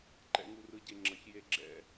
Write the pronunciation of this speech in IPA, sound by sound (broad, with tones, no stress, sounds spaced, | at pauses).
ǃ ɛ̰˨ ŋ u˨ r ɯ˨ ɟ e˨ ŋ͡ǁ ʌ˨ ç j e˧ ɡ͡ǁ ɛ̰˧